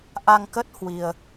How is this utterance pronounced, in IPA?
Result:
ʔ a˧ ŋ k ə˦˥ t̚ h w i˧ ə̯

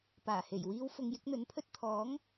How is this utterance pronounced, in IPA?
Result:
p aː˨˩ h e˨˩ j w iː˥ w f ʊ˧ ŋ j ɪ˥ k̚ n̪ ɵ˨˥ n pʰ ɵ˥ t̚ t̪ʰ ɔː˨˥ ŋ

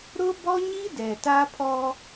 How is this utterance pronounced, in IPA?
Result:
ɾ ʊ˦ b ɔ˦ ɲ i˦ d ɛ˨ t a˦ pʰ ɔ˦

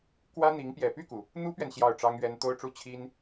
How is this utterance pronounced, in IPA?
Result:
k w ä˥ n̪ i˧˥ ŋ p j ɛ˨˩ p y˥˩ k u˩ | n̪ u˥ p ɥ ɛ˨ n ɕ j ɑ˥˩ ʊ̯ ʈ͡ʂ ɑ˥ ŋ ɥ ɛ˥ n t̪ o˥ ʊ̯ ʈ͡ʂ u˥ t͡ɕʰ i˥ n

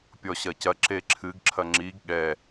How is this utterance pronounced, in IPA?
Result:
pʲ ɔ ɕ ɐ c ɐ ǁ e ǁʰ ɨ ɡ ǁʰ ɐ ŋ͡ǁ i ɡ ɠ ɛ

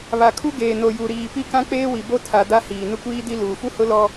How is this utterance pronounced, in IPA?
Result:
β a˨ kʰ u˦ ɡ eː˨ n o˨ j u˨ ɾ iː˨ p i˦ k ã˦ k͡p eː˦ w i˨ b o˦ tʰ a˨ d a˦ h iː˨ n ʊ˦ kʷ iː˦ d i˦ l uː˨ f u˦ h ʊ˦ l ɔ˦

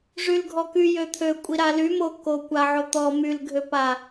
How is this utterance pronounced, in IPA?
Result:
ʐ y l ɡʱ ɔ k y j ø t̪ʰ ø kʷʼ i ɾ a l y m o k o kʷ a ʕ o t̪ ɔ m y l ɡʱ ø p a

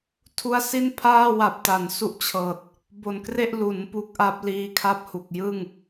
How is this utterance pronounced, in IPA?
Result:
tʰ u˧ a̯ s i˥˩ n pʰ aː˥˩ w a˨˩ p̚ t a˩˦ n s u˦˥ ʔ t͡ɕʰ ɤː˨˩ t̚ | b o˨˩ n k r e˥˩ ʔ l u˩˦ n p u˦˥ k̚ ʔ a˦˥ p̚ l iː˦˥ kʰ a˥˩ p̚ h u˨˩ k̚ j ɯ˥˩ ŋ

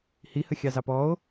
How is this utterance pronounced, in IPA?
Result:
h i h ə xʲ ɑ z ɑ p ɔ o̯

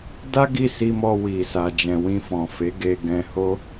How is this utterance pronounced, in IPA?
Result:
d a˦ ɡ i˦˨ s i˧ m ɔ˧ w i˨ s a˨ d͡ʒ ɛ̃˨ w ĩ˧ f ɔ̃˨ f e˨˦ ɡ e˧ ɡ ɛ̃˧ h o˦

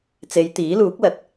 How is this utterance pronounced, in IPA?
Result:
t͡s e˨˧ j t̪ iː˨˥ l uː˨˥ k̚ l ɐ˨ t̚

